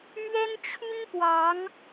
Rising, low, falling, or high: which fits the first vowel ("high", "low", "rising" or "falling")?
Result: high